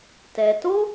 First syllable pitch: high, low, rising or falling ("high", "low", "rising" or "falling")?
low